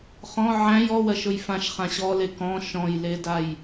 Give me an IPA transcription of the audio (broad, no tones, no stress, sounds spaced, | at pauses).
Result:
χ ɔ̃ ʕ æ̃ j ɔ w ɜ ʃ ʊ j f ã ʃ χ ã ɕ ɔ l e k ɔ̃ ʃ ɔ̃ j l e d a j